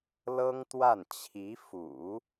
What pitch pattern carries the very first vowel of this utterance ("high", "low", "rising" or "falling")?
high